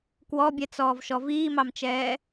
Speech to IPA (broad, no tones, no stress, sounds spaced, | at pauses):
k w ɔ bʲ ɛ t͡s ɔː v ʃ ɔ v iː m ɑ m t͡ʃ ɛː